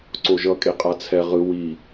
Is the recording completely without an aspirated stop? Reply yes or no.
no